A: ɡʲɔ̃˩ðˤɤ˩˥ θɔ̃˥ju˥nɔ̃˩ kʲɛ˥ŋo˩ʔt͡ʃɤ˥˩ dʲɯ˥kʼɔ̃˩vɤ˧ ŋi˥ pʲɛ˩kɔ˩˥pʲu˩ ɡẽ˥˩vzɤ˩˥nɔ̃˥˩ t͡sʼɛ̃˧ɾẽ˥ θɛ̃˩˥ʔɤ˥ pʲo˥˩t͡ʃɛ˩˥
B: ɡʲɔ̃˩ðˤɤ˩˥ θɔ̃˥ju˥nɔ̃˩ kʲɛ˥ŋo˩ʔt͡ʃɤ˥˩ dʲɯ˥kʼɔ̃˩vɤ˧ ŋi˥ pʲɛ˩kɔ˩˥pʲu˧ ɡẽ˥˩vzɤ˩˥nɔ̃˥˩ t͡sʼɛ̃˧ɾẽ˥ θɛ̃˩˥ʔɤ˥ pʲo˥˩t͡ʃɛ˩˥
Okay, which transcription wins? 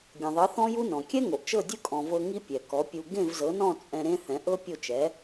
B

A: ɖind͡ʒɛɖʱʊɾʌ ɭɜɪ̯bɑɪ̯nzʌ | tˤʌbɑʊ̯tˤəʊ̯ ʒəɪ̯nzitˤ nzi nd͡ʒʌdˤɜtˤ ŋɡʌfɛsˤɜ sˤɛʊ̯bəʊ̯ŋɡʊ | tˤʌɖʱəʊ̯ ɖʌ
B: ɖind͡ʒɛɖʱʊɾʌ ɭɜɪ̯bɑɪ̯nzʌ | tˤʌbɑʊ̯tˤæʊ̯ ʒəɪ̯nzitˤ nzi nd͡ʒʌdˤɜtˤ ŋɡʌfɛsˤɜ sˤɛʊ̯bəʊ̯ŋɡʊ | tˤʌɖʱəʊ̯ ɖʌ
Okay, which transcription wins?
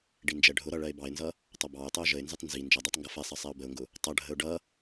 A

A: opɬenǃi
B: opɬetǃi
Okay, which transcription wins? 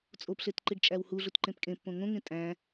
B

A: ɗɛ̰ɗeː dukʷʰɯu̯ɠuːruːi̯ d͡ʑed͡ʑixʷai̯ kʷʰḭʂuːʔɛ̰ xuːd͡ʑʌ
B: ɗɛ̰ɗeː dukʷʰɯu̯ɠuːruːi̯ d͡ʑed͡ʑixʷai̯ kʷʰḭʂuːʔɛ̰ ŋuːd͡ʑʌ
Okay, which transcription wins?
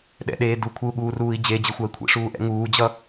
B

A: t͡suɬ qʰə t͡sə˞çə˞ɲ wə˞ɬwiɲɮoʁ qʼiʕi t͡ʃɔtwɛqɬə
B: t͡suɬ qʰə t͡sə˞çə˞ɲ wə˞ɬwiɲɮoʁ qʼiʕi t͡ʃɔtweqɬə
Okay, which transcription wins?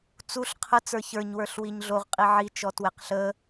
B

